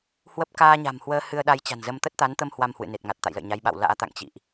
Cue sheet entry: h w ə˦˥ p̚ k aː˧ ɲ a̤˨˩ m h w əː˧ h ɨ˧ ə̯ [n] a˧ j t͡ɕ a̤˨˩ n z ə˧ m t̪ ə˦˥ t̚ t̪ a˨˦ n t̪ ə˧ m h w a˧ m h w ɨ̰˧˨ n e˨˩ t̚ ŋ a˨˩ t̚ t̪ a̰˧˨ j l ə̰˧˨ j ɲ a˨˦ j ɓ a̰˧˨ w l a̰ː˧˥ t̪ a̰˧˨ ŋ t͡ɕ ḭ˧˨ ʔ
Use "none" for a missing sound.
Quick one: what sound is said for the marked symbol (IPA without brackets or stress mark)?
ɗ